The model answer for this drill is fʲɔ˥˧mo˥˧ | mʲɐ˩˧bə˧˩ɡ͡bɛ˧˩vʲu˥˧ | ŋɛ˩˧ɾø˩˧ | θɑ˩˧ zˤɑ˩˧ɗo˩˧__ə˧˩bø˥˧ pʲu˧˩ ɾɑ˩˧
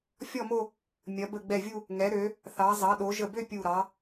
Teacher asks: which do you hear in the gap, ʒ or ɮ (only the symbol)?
ʒ